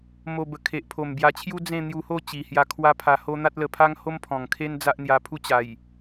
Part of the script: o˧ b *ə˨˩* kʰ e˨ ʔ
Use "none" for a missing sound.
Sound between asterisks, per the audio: ə˨˩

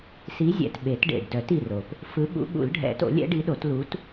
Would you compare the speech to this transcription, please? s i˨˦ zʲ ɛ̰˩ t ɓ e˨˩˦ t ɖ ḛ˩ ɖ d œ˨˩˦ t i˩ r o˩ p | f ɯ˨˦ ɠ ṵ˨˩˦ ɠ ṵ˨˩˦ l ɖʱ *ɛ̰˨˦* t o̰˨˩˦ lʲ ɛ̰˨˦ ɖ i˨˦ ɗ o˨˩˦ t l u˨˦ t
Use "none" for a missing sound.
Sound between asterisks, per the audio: ɛ̰˨˩˦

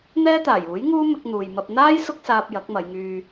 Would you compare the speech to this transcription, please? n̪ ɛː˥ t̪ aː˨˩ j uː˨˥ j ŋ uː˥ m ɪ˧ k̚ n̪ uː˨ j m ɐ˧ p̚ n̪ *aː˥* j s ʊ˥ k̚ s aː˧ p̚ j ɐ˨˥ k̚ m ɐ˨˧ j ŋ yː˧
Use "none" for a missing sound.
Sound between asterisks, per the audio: aː˥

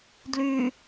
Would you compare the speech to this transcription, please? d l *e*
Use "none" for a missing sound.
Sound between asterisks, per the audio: y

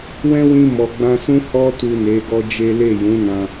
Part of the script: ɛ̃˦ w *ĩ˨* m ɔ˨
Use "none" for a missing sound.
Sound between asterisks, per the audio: ĩ˧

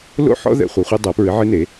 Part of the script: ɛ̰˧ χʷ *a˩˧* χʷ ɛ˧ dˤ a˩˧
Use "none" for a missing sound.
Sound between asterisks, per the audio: ɐ˩˧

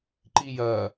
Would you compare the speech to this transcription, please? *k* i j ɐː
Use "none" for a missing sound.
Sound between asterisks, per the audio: ǃ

